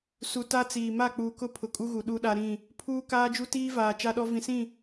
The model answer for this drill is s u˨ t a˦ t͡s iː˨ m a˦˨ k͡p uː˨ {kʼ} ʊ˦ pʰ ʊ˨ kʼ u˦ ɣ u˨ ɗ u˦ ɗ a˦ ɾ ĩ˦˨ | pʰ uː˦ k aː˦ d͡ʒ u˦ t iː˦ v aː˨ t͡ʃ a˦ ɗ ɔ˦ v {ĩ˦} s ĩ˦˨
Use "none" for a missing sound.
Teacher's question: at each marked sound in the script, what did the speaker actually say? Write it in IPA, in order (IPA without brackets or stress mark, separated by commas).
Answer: k, ĩ˨